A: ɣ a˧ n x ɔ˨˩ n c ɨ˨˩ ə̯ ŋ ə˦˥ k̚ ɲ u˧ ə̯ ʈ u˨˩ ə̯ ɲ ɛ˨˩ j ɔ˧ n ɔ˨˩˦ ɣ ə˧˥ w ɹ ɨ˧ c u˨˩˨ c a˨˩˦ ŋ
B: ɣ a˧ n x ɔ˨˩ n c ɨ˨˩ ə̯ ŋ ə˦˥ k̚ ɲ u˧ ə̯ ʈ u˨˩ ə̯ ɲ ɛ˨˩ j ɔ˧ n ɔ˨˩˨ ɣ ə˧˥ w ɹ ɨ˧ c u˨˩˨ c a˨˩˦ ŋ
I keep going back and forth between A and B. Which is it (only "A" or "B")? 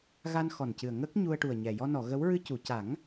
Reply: B